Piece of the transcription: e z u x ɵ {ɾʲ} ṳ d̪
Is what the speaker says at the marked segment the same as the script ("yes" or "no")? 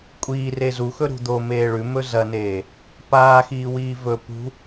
no